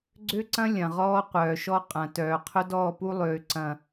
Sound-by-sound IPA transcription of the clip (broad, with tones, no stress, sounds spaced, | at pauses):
ɡ͡ǀ ø˦ ǀ ɐ̃˦ lʲ ɐ̃˨ ʁ ɔː˦ qʷ œː˨ ʃ ɔ˦ qʼ ɐ̃˨ t œː˨ qʰ ʊ˦ d ɔː˦˨ p u˦ lˠ øː˨ ǀ ɐ̃˨